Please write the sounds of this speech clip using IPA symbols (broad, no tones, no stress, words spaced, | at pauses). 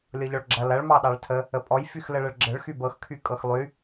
lʲɤʎɔɭɡ͡ǁɐ lɐɭ mɑɗɑɭtʰə | əpʼɔj fyxləɭəɭɡ͡ǁəɭ xybɤxkʰy kʼɤxlˠy